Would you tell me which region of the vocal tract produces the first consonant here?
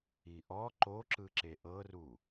throat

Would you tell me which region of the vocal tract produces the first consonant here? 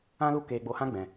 tongue tip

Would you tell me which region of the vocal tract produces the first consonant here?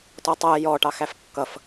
tongue tip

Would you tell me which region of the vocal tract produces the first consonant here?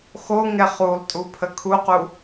velum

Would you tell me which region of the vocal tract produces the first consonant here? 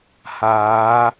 throat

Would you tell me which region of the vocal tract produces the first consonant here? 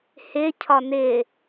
throat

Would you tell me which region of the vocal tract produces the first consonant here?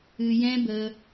palate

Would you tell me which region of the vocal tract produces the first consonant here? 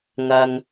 velum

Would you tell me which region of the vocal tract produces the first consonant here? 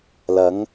tongue tip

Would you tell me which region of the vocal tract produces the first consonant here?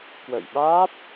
velum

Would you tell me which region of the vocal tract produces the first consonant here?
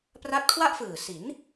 lips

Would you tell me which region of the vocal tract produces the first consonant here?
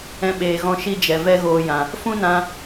lips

